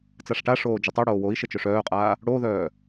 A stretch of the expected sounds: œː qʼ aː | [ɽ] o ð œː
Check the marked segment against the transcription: correct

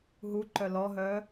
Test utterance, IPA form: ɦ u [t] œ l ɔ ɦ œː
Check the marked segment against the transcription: incorrect: ǃ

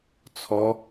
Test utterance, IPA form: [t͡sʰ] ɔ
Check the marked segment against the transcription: correct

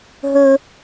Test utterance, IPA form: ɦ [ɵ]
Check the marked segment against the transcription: correct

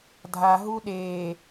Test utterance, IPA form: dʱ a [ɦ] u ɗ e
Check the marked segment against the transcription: correct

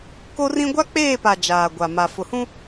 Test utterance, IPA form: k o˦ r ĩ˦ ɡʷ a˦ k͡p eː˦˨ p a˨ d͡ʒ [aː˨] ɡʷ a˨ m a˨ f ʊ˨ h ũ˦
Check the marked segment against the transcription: correct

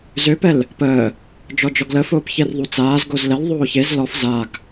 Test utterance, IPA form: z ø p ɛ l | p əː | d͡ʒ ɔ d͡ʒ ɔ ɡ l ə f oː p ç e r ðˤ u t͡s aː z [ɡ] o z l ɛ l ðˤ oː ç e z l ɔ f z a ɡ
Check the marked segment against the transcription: correct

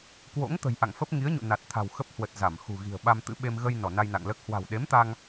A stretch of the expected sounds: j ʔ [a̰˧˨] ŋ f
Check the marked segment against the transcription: correct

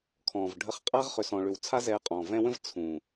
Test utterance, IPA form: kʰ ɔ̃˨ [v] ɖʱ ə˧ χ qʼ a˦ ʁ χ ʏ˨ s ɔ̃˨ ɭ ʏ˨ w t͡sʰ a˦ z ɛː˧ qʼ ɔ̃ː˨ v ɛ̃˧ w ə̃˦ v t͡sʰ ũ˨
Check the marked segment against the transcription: correct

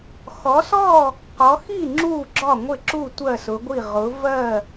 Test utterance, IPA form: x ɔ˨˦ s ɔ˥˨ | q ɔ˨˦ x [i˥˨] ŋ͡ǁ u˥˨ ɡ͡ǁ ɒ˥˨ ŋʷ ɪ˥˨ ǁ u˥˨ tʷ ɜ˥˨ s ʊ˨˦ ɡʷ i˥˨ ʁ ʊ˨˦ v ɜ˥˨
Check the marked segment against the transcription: correct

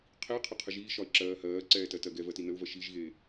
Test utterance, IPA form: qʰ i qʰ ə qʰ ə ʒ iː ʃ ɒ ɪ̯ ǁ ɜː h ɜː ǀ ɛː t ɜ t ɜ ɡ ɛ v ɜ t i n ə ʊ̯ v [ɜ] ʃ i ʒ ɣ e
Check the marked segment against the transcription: correct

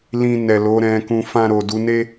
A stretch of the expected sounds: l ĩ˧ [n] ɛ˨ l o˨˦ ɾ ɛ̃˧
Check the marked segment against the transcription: correct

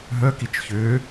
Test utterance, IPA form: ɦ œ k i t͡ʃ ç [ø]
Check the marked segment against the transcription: correct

